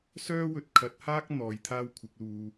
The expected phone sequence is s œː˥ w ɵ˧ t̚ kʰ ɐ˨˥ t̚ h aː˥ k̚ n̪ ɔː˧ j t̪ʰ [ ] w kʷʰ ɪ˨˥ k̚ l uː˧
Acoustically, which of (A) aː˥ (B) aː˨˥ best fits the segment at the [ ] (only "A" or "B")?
A